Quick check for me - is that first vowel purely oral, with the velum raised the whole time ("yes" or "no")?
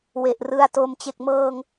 yes